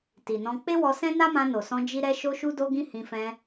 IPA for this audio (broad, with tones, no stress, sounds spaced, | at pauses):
t i˨ n ɔ̃˧ k͡p e˦ w ɔ˧ s ɛ̃˦ n a˦ m ã˧ n o˨ s ɔ̃˧ d͡ʒ i˦ ɾ ɛ˦ ʃ o˦ ʃ u˦ d o˦ ɡ ĩ˦ h ĩ˧ f ɛ̃˧